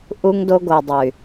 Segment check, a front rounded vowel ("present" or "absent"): present